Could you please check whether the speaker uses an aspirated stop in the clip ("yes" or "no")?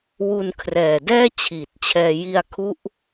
yes